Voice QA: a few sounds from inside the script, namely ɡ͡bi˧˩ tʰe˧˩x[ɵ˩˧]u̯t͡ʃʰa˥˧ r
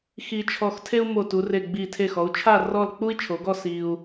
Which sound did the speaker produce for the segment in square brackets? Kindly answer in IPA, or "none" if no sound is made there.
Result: ɔ˩˧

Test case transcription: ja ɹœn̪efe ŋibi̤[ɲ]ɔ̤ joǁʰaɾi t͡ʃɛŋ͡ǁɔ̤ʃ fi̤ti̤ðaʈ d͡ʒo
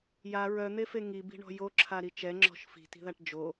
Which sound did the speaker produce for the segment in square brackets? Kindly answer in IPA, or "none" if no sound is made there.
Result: ɳ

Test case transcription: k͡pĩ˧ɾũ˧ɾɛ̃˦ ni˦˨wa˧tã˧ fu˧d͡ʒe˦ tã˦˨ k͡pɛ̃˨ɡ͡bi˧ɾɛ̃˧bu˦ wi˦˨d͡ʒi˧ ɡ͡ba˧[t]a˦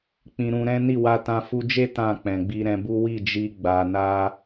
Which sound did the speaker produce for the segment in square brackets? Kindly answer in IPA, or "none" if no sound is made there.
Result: n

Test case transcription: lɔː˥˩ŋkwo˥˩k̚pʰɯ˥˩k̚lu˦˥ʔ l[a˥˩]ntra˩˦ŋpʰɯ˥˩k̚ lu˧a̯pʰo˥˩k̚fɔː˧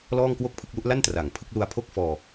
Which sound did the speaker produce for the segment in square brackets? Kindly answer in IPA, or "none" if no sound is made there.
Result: a˥˩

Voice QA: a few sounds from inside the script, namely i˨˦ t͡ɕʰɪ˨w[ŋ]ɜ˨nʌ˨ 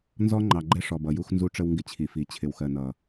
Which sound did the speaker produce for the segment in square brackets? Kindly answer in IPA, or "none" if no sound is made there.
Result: x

